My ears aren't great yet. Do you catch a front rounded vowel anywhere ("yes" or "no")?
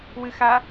no